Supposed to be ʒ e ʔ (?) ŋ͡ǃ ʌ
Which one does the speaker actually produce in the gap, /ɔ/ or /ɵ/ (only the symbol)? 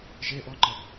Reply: ɔ